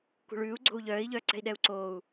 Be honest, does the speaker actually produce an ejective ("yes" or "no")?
no